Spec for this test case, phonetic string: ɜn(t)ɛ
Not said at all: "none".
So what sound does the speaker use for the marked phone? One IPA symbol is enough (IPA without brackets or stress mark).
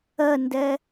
d